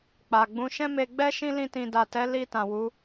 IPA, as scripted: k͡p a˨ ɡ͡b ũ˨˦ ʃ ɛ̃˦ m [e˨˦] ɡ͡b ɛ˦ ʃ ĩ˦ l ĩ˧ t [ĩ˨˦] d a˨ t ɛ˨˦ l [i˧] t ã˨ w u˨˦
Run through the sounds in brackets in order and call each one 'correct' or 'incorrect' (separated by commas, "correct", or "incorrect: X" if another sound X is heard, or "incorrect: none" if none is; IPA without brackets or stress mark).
incorrect: e˧, incorrect: ĩ˨, correct